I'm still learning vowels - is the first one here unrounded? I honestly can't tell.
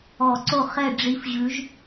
no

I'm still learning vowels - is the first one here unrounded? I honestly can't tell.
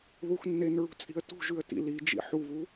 no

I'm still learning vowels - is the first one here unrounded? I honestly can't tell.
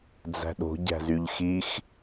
yes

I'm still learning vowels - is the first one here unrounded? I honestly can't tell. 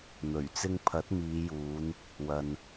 no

